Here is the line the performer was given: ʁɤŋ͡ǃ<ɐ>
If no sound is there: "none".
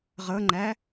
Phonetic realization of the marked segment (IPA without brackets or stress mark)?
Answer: æ